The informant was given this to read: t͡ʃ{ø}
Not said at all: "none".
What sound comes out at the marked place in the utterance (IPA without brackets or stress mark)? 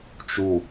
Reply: u